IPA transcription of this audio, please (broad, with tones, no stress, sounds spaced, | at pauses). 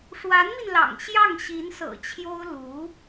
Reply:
ʂ w a˧˥ n m i˧ n l ɑ̰˨˩ ŋ ɕ j ɑ˥˩ ŋ ɕ i˧˥ n s ɤ̰˨˩ t͡ɕʰ j o˥ ʊ̯ l u˧˥